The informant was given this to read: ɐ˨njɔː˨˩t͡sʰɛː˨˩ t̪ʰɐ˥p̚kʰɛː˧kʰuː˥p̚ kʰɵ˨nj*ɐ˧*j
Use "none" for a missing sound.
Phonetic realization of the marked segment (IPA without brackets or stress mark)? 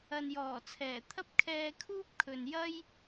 ɐ˥